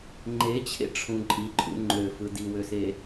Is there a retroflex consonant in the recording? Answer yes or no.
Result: yes